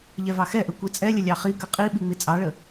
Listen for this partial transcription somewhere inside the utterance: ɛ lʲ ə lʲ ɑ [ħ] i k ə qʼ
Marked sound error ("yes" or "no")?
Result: yes